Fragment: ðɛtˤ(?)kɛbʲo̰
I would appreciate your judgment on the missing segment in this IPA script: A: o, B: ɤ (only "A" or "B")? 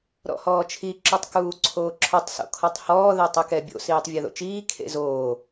B